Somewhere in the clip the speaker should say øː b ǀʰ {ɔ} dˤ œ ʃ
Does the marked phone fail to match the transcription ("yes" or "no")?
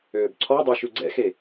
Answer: no